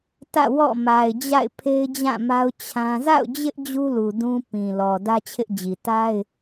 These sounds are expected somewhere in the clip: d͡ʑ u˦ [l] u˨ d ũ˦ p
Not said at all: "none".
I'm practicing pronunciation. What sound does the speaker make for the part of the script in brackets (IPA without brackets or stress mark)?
l